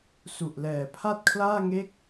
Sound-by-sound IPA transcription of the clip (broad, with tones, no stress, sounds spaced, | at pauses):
s u˨˩ ʔ l ɛː˨˩ pʰ a˥˩ t̚ kʰ l aː˥˩ ŋ e˥˩ k̚